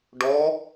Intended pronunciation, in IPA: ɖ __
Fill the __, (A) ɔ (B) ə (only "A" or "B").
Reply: A